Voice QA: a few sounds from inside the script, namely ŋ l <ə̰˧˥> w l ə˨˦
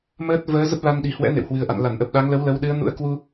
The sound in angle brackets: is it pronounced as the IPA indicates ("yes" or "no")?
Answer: no